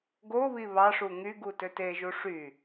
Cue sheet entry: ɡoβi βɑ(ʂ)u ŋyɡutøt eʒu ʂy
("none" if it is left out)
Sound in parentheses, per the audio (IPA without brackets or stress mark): ʂ